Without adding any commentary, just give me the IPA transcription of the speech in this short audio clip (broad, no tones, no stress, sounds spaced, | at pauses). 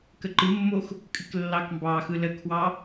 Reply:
k ə ǃ ɨ mː o x | kʼ ɨ k lː ɑ k m b ɑ x ɯ l ə kʰ w ɑ